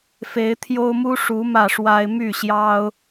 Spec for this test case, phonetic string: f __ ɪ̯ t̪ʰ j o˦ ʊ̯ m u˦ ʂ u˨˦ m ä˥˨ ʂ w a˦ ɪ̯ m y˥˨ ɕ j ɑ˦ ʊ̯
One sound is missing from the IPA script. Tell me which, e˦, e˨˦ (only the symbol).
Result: e˨˦